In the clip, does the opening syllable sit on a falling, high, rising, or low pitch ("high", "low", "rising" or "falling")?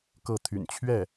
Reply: falling